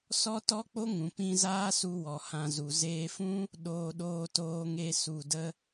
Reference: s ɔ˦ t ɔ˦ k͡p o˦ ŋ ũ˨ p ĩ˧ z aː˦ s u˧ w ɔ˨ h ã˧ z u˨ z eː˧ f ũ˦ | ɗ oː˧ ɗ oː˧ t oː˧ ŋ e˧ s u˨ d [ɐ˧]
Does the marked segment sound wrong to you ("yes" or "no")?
yes